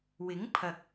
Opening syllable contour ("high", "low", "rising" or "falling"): rising